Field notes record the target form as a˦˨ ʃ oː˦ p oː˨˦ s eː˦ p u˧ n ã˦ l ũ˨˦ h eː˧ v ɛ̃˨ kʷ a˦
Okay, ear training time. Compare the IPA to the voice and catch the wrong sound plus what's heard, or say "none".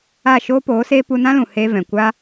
ũ˨˦ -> ũ˨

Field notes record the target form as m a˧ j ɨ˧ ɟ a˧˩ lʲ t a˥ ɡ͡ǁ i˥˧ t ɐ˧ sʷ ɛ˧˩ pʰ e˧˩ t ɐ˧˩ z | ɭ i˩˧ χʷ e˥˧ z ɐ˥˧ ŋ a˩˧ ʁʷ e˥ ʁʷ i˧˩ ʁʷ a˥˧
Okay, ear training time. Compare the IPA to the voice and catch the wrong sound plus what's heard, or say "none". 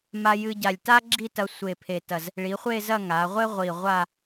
ɛ˧˩ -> e˧˩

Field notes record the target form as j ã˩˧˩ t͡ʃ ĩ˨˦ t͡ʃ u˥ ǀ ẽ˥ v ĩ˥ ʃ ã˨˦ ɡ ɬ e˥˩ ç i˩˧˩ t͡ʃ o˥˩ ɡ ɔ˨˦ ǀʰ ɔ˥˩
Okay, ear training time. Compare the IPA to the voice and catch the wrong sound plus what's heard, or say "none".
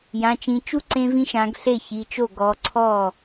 none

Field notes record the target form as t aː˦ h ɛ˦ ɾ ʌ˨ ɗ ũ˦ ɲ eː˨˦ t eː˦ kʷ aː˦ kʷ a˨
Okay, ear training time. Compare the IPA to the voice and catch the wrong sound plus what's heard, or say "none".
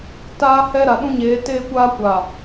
ʌ˨ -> a˨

